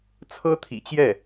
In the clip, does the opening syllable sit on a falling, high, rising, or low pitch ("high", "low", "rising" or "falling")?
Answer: high